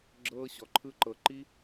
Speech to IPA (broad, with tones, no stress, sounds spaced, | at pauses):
ɡ͡ǁ ɤː˦ ɕ ɔ˧ ǃʰ ɯ˦ ǃ ɤ˧ ǃ i˦